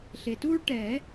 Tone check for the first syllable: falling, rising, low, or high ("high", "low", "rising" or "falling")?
low